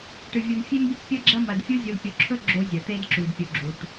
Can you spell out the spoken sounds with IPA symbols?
ʈ ɨ˨ vʲ u˨ n fʲ e˦ m bʲ ɵ˦ tʲ pʲ ɐ˦ ɡ͡ǁ ɐ˦ m ɐ˨ d fʲ u˦ zʲ u˨ l pʲ o˨ ǁʰ ɵ˦ ɡ͡ǁ o˦ zʲ ɐ˨ t̪ e˦ d ǁ u˨ d pʲ u˨ ɡ͡ǁ u˨ ʈ

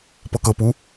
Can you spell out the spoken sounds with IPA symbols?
p ɤ k ɤ p u

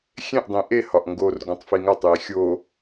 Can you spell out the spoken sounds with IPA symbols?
xʲ ẽ ʔ dˤ ĩ ʔ e h ɒ ʔ ŋ ɡ o r ɡ õ tˤ f i ŋ æ tˤ j i xʲ o

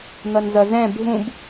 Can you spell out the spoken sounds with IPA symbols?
n̪ ʌ n z ʌ z ɛ̃ bʱ ũ b

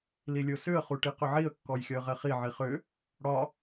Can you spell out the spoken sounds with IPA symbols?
l i lʲ o s ʏ ə̯ χ u ʈ i q ʏ ʕ i ə̯ kː ɔ j xʲ ɒ ə̯ ʁ ɛ χ i ʕ i χ ʏ | ɽ ɒ

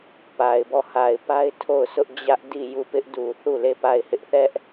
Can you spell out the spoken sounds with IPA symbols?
p a˨ ɪ̯ b ɔ˦˨ h a˨ ɪ̯ p a˦ ɪ̯ tʰ o˦˨ ʊ̯ s ʊ˦ ʔ d͡ʑ ä˦ ʔ d i˦˨ j u˦˨ p ɪ˦ ʔ d u˨ θ u˦˨ l e˦˨ p a˦˨ ɪ̯ h ɪ˦ ʔ θ ɛ˦ ʔ

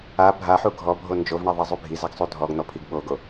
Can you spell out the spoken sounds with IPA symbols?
a bʱ a ħ u ɡʱ ɔ bʱ o n d͡ʒ o v ɳ ɛ ðˤ ɛ zˤ u bʱ i z a ɡ sˤ u dʱ ɔ ɡ n̪ ɔ pʰ i ɡ ɓ o ɡ o

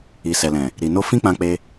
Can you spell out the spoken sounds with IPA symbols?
i˨ s ɛ˨ l ɛ̃˨ | ɾ i˨ n o˧ f ĩ˦ k͡p ã˧ k͡p e˧

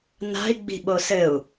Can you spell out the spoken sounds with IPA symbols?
n a̤ i̯ ɡ͡b i̤ ɓ o s ɘ u̯

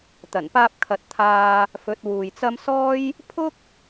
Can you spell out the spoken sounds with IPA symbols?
t̪ ɐ˨˩ n p aː˧ p̚ kʰ ɐ˨ t̚ t̪ʰ aː˧ | f ɵ˨˥ t̚ w uː˨ j t͡s ɐ˥ m s ɔː˥ j | pʰ ʊ˥ k̚

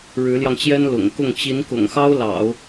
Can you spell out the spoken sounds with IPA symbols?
ɻ ɻ̩˧˥ l j ɑ˧ ŋ t͡ɕ j ɛ˥ n l ʊ̰˨˩ ŋ k ʊ˥˩ ŋ t͡ɕ i˧˥ n k ʊ̰˨˩ ŋ x ɑ˥ ʊ̯ l ɑ̰˨˩˦ ʊ̯

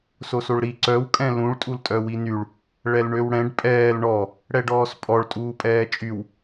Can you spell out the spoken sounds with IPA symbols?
s o s o ɭ ɾ i ǀ œ w kʼ ɛ̃ l ũ ɭ tʼ u l tʼ œ w i n y ɭ | ɭ ɛ l ɳ ø w ɽ ɛ̃ ɖ pʼ ɛː l ɳ ɔ | ɽ ɛ ɖ ɔː s pʼ ɔ ɭ tʼ uː pʼ ɛː t͡ʃʼ y w

